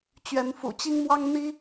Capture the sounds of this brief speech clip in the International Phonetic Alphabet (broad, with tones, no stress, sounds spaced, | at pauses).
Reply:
t͡ɕ ɥ ɛ˨˦ n f ṵ˨˩ t͡ɕ i˦ ŋ m w ɑ˦ ŋ n̪ i˦